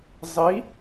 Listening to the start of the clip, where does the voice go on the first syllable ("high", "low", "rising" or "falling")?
rising